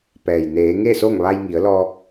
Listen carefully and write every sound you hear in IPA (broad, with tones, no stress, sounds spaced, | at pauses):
p ɛː˩ j n eː˩˧ ŋ e˥˨ s o˥˨ ŋ ʋ a˧ j ŋ i˩˧ ə̯ l ɔː˧ k̚